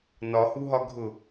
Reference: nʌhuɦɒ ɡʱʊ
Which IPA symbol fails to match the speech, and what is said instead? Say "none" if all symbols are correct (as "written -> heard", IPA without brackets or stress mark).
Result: ʌ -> ɒ